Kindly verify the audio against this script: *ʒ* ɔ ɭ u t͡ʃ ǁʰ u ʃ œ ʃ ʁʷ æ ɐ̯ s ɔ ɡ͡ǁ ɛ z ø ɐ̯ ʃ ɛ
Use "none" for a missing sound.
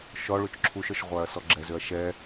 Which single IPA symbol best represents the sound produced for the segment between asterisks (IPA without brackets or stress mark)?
ʃ